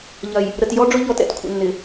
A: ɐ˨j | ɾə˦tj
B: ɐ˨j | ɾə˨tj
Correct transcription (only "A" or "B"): B